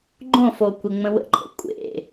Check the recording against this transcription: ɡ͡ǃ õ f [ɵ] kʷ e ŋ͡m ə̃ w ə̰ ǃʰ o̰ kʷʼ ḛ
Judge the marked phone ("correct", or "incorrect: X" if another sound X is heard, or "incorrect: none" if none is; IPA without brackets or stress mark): incorrect: o